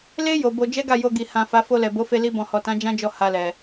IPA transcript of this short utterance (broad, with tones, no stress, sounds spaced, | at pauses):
l e˦ j o˧ b o˧ d͡ʒ ɛ˦ ɡ a˦˨ j o˧ ɡ i˨ h ã˨ f a˨˦ f o˧ l ɛ˨ b o˨˦ f e˧ l i˧ b ɔ̃˨ h ɔ˨ t ã˨˦ d͡ʒ ã˦ d͡ʒ ɔ˦˨ h a˧ l ɛ˨